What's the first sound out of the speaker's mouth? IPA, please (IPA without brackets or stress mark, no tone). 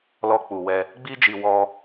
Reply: l